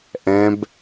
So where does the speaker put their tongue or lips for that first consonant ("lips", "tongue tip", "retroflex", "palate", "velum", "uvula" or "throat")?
throat